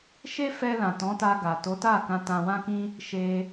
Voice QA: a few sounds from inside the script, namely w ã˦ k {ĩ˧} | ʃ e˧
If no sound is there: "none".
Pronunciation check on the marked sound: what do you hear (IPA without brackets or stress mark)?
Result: ĩ˦